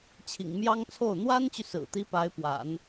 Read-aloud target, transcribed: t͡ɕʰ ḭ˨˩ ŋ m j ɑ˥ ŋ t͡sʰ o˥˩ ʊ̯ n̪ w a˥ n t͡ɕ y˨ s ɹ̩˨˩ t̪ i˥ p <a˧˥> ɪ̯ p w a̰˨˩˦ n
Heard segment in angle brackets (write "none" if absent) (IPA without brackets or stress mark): a˧˥